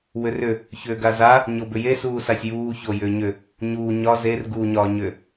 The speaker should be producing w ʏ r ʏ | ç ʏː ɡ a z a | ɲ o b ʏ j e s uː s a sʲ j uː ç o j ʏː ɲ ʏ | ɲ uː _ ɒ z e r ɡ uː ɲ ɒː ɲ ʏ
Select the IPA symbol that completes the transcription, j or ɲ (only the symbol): ɲ